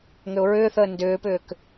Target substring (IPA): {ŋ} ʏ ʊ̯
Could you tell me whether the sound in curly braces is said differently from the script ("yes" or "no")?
no